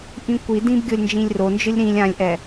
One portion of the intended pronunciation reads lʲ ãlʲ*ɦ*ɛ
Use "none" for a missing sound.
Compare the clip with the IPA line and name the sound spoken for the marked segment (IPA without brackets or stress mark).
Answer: ʔ